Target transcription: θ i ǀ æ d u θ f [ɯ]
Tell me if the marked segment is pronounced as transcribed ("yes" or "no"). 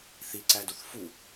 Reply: no